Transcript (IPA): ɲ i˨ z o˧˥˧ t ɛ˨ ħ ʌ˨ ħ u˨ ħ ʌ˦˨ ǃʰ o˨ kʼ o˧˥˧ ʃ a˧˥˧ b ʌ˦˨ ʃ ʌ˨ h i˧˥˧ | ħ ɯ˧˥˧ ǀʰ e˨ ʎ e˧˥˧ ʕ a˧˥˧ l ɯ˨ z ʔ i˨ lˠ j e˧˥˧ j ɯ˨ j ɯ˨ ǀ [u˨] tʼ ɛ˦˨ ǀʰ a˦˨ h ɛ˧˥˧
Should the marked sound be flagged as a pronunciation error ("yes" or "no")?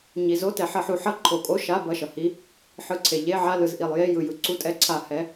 yes